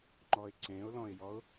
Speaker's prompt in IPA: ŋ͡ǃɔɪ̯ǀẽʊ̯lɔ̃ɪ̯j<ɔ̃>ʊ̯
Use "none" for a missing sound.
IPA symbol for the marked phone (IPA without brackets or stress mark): ɔ